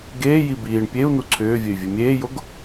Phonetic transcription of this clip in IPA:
ɡ eː j i b iː ɳ pʲ e u̯ n u ǀʰ ʏː vʲ e y̯ vʲ e mʲ eː j o ɡ

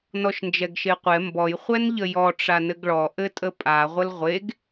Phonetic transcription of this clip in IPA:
n ɔ ʃ n d͡ʒ ɛ ɡ ʃ e qʷ ɛ m b ɔ j χʷ ɛ n ʎ ə j ɔ ʈ͡ʂ a n ɘ ɡ ɭ ɔ ʔ ɘ tʼ ə pʼ a ʁʷ ə l ʁʷ e ɡ

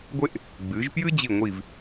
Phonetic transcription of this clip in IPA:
ɡʷ e˥ ʔ | ɡ͡b ɨ˩˧ ʒ p j ɨ˥ d͡ʑ i˧˩ ŋʷ i˧˩ v

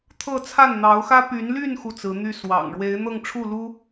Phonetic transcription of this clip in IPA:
t̪ʰ ɤ˥˧ t͡sʰ a˥˩ n n̪ ɑ˧˥ ʊ̯ x ä˥ p y˧˥ n l y˥˧ n x u˥˩ t͡s ɹ̩˧˥ n̪ y˥˩ s w ɑ̰˨˩ ŋ ɻ w e˧˥ ɪ̯ n̪ ɤ˥˧ ŋ ʈ͡ʂʰ u˥˩ l u˥

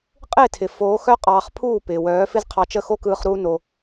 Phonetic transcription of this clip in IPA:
qʼ ɪː˦˨ tʰ ɪ˨ f oː˨˦ x œ˦ qʼ ɑː˧ χ pʰ uː˦˨ p ɪː˨ w œː˨˦ f ɪ˦ z qʰ ɑ˧ t͡ʃ ə˦˨ x o˦ k ɯː˧ χ ɾ uː˦ n o˧

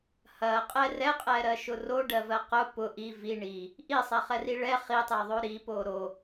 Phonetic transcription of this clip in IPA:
h ɐ qʼ ɛ r ɛ qʼ ɛ ɾ ɜ ʃ ʊ r o ɖ ɜ v ɜ q ʊ p ʊ ʔ i v i ɳ i | ʔ i sˤ ɛ χ ɛ r i ɭ ɛ χ i tˤ ɛ ðˤ o ɾ i p o ɾ o

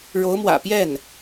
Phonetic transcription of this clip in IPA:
ɻ o˧˥ ʊ̯ m w ä̰˨˩ p j ɛ˥˩ n

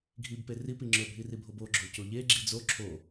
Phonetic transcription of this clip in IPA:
ɡʱ i b p e r i p i ŋ͡ǁ ɵ bʱ i r i bʱ o b o ɡ͡ǁ o c o ʎ e ɡ͡ǁ i d͡z o ǁʰ o

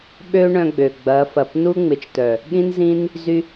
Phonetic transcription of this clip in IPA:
ɓ ø˦ ɳ œ̃˧ ɡ͡b ø˨ ɡ͡b ɐ˨˦ f ɐ˨ p n u˦ ŋ͡m ɪ˨ t͡ʃ t œ˨ | ɠ ĩ˦ n z ĩ˦ n | z y˦

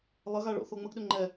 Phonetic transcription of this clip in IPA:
lˠ ə ɣ a ɭ o̰ θ o ŋ͡m ə ɡ ɗ ʏ ŋ͡ǃ ɛ

